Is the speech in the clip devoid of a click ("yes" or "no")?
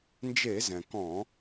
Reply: yes